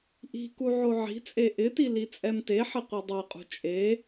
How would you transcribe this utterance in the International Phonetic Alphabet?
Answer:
ʔi̤ku ʕoʕi̤t͡sʼe ʔɪti lit͡sʼɛmteħɪ qʷidˤɛqʼṳ t͡ʃʼe

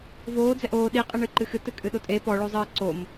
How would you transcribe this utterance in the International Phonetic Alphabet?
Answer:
voː d͡zɛʔoː ɗiqʼɨɳɨ ǃɨxɨtɨ kʼɨɗotʼe pɔɭozˤɨː ǀom

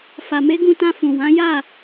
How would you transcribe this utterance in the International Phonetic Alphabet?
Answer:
fa˨me˨˦ɡũ˧ tã˧fũ˨ wã˨˦ ja˦˨

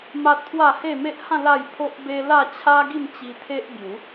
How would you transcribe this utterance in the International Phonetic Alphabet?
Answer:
ma˦t̚pʰwa˥˧ he˥˧me˦ʔhã˥˧ la˥˧jpʰo˦ʔbe˦ la˥˧t͡ɕʰa˦ ɡi˥˧mt͡ɕi˧ t̪ʰe˦ʔ bju˨˦

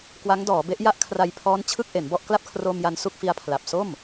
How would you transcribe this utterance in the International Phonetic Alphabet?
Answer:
kwa˦˥ŋdɔː˩˦be˦˥ʔ ja˥˩ʔkʰra˧jpʰɔː˦˥n t͡ɕʰɯ˥˩k̚ʔe˩˦nbɔ˥˩ʔ kla˥˩p̚kʰroː˧mja˧n su˥˩k̚fi˧a̯pʰla˨˩p̚ so˥˩m

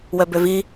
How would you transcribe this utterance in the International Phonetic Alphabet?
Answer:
wœbøvi

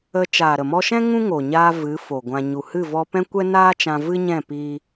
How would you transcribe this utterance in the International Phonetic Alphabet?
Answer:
ə˧ t͡ʃaː˨ɾə˨mɔ˧ʃɛ̃˦ ŋũ˦ŋo˨ ɲaː˧ vɨ˨˦ fo˨ɡʷã˧ ɲu˨hɨ˦˨vɔ˧pɛ̃˦ kʷɛ˦naː˦ t͡ʃã˧vɨ˦ɲɛ̃˦˨piː˧

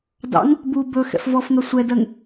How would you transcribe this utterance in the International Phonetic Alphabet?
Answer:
dɑ̰ŋ | bu bɵ xɛ̰fvɔfŋɜ sʷɛdɜŋ

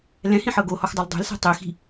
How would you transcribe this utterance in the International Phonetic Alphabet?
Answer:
lɛ̃hĩħɤ ɡohɔxdˤɤl dˤe̤lse̤ tˤixi̤

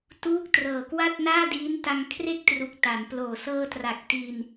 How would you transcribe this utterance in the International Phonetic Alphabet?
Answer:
tuː˦˥k̚trɤː˨˩kwa˥˩t̚ naː˥˩diː˦˥nta˧ŋ kʰre˥˩k̚tru˨˩k̚ ta˩˦nploː˨˩ sɤː˧tra˨˩k̚ti˧n

